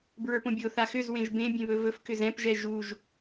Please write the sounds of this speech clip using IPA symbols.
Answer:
b ɹ ə˞ p õ bʲ o θ a x ʏ z w ẽ ʒ b ẽ bʲ ẽ β ɵ v ɵ f k ʏ z ɛ̃ p ʒ ɛ ʒ u ʒ

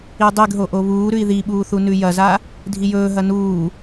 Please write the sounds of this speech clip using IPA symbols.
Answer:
i dˤ i ɡ ɦ o ʔ o β uː ɾ ʉ i̯ ð i ɓ uː θ u n ʉ j ɐ z a | dʱ i j ɵː ɦ ɐ n uː

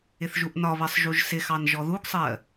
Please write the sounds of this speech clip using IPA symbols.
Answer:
ɪ θ ʒ u ʔ n ɒ β ɜ sˤ ʒ u ʒ s ɪ x ɑ n ʒ ɔ ð u ɡ sˤ ɜ

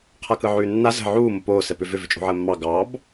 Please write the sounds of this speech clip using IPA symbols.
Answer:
qʰ a k ɯ ʕ ʉː nː a z ə̤ ʕ uː m o p oː s ɛ p ʏ v ʏ v ʏ t͡ʃʼ o̤ ʕ əː mː ɑ ɡ ɑː b

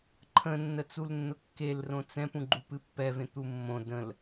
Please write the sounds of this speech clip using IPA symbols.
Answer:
ǃʰ ə̃ nː ə t͡s u l nː ʊ kː e l r õ t͡s ɛ̃ p ũ ɡ͡ǃ u p ɨ pː ɛ v ẽ t̪ u mː õ d ə̃ l

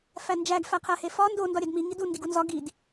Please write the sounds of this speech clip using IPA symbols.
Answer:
f æ n d͡ʒ æ ɡ f æ qʰ æ h e f ɒ n d o n d ɒ ɾʲ æ d m i ŋ i d u n d i ɡ u n z ɒ ɡ i d

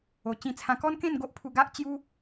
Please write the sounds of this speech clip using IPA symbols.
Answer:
o˨˩ t͡ɕ ĩ˧ t͡sʰ ã˧ k ɔ˦ n k ẽ˥˧ n ɡ o˦ ʔ pʰ u˧ ɡ a˦ ʔ t͡ɕ j u˦

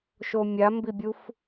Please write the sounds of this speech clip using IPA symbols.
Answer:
ʃ o mʲ a m b i bʲ u f

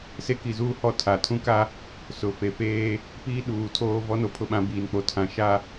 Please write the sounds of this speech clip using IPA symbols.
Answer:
s e˦ k i˨ z uː˦ h ɔ˦˨ tʰ a˨ tʰ ũ˦ k a˦ | s ʊ˨ f e˨ f eː˦ | p iː˦ ɗ uː˨ tʰ oː˦ v ɔ˦ n o˨ pʰ ʊ˦ ɓ ã˨˦ b iː˨ n k͡p o˨ tʰ ã˨ ʃ a˦

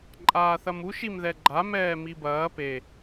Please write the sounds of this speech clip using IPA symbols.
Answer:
ǃʼ aː θ ɐ m u ʃ i m ð ɛ ɡ͡ǃ a m ɛː m i b ɐː p e

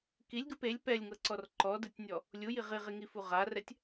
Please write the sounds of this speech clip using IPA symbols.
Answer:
k i lʲ ɡ ɯ p e lʲ p ɛ lʲ ŋ ɤ ǀ ɔ r ǃ ɔ d ɯ tʲ nʲ ɔ | lʲ u j i ʁ i ʁ i ŋ i f u ʁ a r ɛ tʲ

